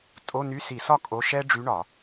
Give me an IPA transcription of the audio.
tʼ o˧˥˧ n y˧˥˧ s i˧˩˧ s ɒ˥˩ kʼ o˧˥˧ ʃ ɛ˥ ɖ͡ʐ y˧˥ ɳ ɒ˧˩˧

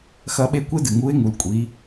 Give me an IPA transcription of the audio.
x ɐ˧˥ ɓ e˧˥ kʷ e˥ d ɨ˩ ŋ u˧˥ ɪ̯ ŋ u˩˧ l kʷʼ i˩˧

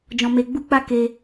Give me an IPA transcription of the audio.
d͡ʒ ɔ̃˧ m e˧ ɡ͡b u˦ k͡p a˦ k e˧

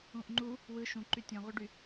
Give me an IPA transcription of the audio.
ũ ʔ ŋ͡ǃ u | w ɯ ʃ ũ ǃ y tʲ õ ʁ ø ɖ y

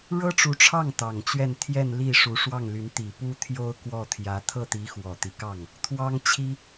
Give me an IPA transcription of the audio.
ɻ ɤ˥ ʈ͡ʂ u˧˥ ʈ͡ʂʰ ɑ˥˩ ŋ t̪ ɑ˨˩ ŋ t͡ɕ ɥ ɛ˥˧ n t̪ʰ j ɛ˥˧ n l i˥˩ ʂ u˧˥ ʂ w ɑ˥˩ ŋ l y˧˥ n t̪ i˨˩ p u˥ t̪ʰ j o˥ ʊ̯ k w ɔ˥˩ t̪ʰ j ä˧˥ t̪ʰ ɤ˥˩ t̪ i˧˥ x w ɔ˨˩ t̪ i˦ k ɑ˥˩ ŋ | t̪ʰ w ɑ˥ ŋ t͡ɕʰ i˥

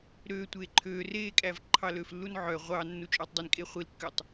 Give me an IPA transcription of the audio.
ɾ ø tʷ eː ǃʰ øː r eː kʼ æ v ǃʰ ɑ l ø f lː u n ʕ œ ʁʷ ɑ nː u t͡ʃʼ øː tˤ dˤ i n kʼ e χʷ i l kː ø tˤ

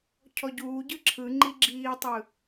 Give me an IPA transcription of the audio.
cʰ ɔ ɟ uː ɟ ɯ ǁʰ ɯ ŋ͡ǃ i ɡ͡ǁ iː tˤ ɯ

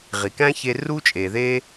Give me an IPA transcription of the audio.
ʁ i˨ k æ̃˦ ç e˧ r u˦ t͡ʃʼ e˨ ð e˦

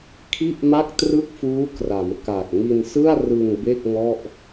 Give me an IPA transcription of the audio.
kʰ i˥˩ ʔ m a˥˩ k̚ t r ɯ˥˩ k̚ f uː˦˥ k r a˩˦ m k a˨˩ k̚ ŋ i˧ n s ɯ˥˩ a̯ r ɯ˧ ŋ b e˥˩ k̚ ŋ ɔ˥˩ ʔ

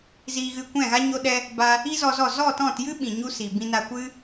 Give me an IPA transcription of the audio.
z iː˧ ɣ ɨ˧ kʷ ɛ̃˦˨ ɣ a˦ ɲ o˧ ɗ ɛ˧ | b a˧ | i˦ z ɔ˧ z ɔ˦˨ z ɔ˦˨ t ɔ̃˦˨ t j ɨ˦ ɓ ĩ˨ ɲ u˦ s i˨ b ĩ˧ n a˧ kʷ ɨ˦

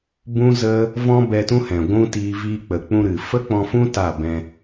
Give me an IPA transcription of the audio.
b ũ˦ z ə˦ | v ɔ̃˦ b ɛ˧ t ũ˦ h ɛ̃˨ ɡʷ ũ˦ t iː˧ v iː˧ k͡p ə˨ k͡p ũ˧ ɾ ɨ˨ f ə˦ k͡p ɔ̃˧ f ũ˦ t a˦˨ b ɛ̃˧

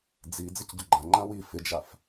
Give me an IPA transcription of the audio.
d͡z i d͡z ɪ c ɟ ʊ ɡ͡ǃ ã ŋ͡ǃ ã w i f ɪ d͡ʒ a f

